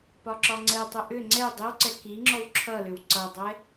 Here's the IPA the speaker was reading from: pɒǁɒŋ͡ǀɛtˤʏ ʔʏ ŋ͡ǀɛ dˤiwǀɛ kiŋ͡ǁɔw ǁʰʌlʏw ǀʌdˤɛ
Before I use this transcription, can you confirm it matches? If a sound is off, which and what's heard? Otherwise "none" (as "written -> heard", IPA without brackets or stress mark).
none